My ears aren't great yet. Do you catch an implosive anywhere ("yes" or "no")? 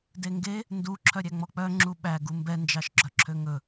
yes